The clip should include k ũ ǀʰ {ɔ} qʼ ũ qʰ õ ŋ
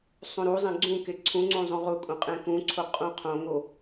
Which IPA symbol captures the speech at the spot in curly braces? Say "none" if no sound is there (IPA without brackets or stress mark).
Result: o